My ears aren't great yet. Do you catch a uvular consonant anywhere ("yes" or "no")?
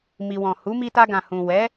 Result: no